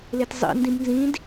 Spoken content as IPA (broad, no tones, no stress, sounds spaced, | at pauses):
l e t zˤ ḭ n d ĩ b n z ĩ d